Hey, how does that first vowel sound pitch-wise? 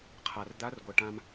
low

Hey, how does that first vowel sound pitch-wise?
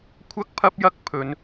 high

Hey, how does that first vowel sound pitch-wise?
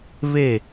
falling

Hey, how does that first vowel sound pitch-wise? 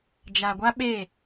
low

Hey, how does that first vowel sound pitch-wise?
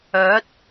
rising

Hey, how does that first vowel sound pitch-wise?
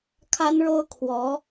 high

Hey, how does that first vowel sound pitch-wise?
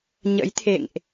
rising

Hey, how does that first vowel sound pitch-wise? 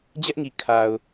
high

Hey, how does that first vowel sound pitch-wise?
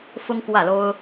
high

